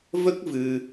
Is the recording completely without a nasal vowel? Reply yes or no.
yes